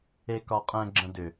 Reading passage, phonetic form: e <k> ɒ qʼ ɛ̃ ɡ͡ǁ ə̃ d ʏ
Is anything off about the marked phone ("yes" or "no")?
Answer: no